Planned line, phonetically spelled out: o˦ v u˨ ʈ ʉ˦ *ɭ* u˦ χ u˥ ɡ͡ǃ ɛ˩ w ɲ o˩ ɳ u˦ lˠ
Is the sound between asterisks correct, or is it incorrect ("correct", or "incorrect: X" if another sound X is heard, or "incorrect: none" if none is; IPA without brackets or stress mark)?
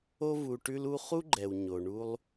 incorrect: l